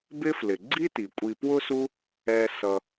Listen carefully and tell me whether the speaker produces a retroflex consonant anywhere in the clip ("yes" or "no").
no